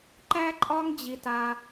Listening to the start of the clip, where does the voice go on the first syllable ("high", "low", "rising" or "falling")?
high